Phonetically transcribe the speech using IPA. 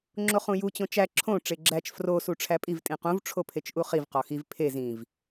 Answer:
ŋ͡ǁ o χ ũ j u t͡ɕ õ t͡ʃ æ ǁʰ õ ʈ͡ʂ e ɡ͡ǁ æ t͡ʃ f r o s u ʈ͡ʂʰ æ pʼ i v tʼ ĩ q ũ v ʈ͡ʂʰ o pʰ e t͡ʃ ʔ u χ i v q ɒ x i v pʰ e z ĩ v

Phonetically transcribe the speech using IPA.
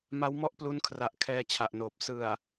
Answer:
m a˦˥ w m ɔ˥˩ ʔ p l u˦˥ n kʰ r a˨˩ ʔ kʰ ɛː˧ t͡ɕʰ a˨˩ ʔ n oː˨˩ p̚ s ɯ˨˩ a̯

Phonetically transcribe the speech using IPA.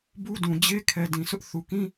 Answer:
b u˦ d ũ˨ d͡ʑ e˦ kʰ ɛ˨ d ĩ˨ sʰ ʊ˦ ʔ θ u˨ k ĩ˦

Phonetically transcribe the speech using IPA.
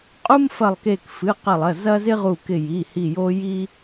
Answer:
qʼ u˦ m f ɐ˧˩ lˠ k e˧˩ k f ɨ˩˧˩ q ɐ˧˩ lˠ ɐ˩˧˩ z ɐ˦ z ɪ˦ ʁ u˧˩ k ɪ˧˩ j i˩˧˩ h i˧˩ j o˦ j i˦

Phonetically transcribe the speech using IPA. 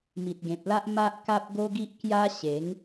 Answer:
m i˨ t̚ ɡ ẽ˨ p̚ l a˦ ʔ m a˦ ʔ k a˦ p̚ ɡ o˦ ɡ i˦ ʔ k j a˦ ɕ e˨˦ ŋ

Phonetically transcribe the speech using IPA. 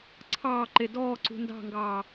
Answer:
ǀʰ ɑː ǃ e d ɔː ǀ ṳ n d ɑ̤ ŋ ɡ ɑː

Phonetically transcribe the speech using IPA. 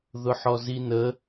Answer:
ð ʊ ħ ɔ z i n ə

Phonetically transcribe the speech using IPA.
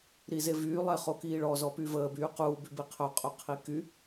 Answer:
ɾ i z e v yː lˠ ɛ χ o k iː ɭ ɔ z ɔ p y v əː b yː q uː b y b i qʰ œ qʼ œ qʰ i k y

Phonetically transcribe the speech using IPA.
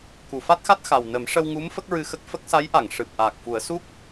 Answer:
k u˨˩˨ f a˦˥ t̚ x a˦˥ t̚ x a˨˩ w n ə˨˩˦ m ʂ ə˧ w ŋ u˧˥ m f ə˦˥ k̚ ɹ ɨ˧ x ə˦˥ k̚ f ə˦˥ k̚ s a˧˥ j ʔ a˨˩˨ ŋ ʂ ɨ˨˩ p̚ ʔ aː˨˩ k̚ f u˨˩˦ ə̯ s u˦˥ k̚

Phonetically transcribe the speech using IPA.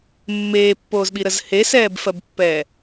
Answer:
mː eː pː oː z ɓ i ɾ ə z h e s ɛː b f ɜ b pː ɛː

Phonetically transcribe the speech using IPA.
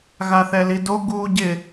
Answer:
ɣ a θ ɛ l i d o ɡ uː ɟ ɪ

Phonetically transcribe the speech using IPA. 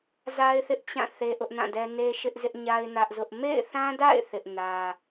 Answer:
z a˦ ɪ̯ θ ɪ˦ ʔ t͡ɕ ã˦˨ θ e˦ ʔ ʊ˦ ʔ n ã˦˨ d ɛ˦ n e˦ ʃ ɪ˦ ʔ z ɪ˦ ʔ ɲ a˦ ɪ̯ n ä˦ ʔ z ʊ˦ ʔ m ḛ˦˨ ɪ̯ θ ã˦ d a̰˦˨ ɪ̯ θ ɪ˦ ʔ n ä˦

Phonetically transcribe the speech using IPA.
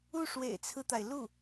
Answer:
u˥˩ ʂ w ḛ˨˩ ɪ̯ t͡sʰ ɹ̩˦ t̪ a˩ ɪ̯ l u˥˩

